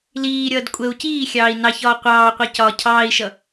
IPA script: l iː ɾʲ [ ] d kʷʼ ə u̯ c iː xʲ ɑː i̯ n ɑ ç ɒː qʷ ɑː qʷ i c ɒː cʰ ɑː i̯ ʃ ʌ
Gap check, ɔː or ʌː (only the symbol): ʌː